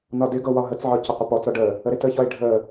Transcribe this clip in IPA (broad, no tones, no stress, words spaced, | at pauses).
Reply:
nɒdɪɡɤ wɒɦət͡sʕɒ cəqʷəpɔt͡sɒ ɖə | əɾɪtəçɒe̯ ɖʱə